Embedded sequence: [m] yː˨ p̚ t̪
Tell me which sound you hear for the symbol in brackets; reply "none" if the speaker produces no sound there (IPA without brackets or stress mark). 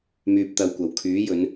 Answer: m